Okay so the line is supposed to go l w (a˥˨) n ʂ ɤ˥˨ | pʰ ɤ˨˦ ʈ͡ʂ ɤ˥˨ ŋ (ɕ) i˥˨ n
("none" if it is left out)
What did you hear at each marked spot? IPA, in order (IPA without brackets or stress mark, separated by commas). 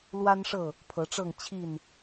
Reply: a˦, t͡ɕʰ